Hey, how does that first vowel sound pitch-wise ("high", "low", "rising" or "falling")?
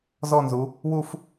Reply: falling